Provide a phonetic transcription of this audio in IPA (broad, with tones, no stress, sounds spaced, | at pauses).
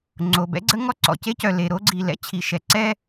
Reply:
ŋ͡ǀ o˩ b ɛ̰˥ ɡ͡ǀ ə˥ ŋ ɔ˥ ǀ ɔ̰˩ c e˥ c œ˩ l e˩ ɾ o˥ ɡ͡ǀ i˩ l ɛ̰˥ t͡ɕʰ i˩ ʃ ɛ˩ ǀ ɛ˥